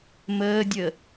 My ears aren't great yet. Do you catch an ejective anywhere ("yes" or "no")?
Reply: no